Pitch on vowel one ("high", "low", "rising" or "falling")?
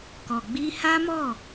low